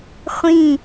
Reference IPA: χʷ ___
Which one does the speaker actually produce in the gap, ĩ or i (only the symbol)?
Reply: ĩ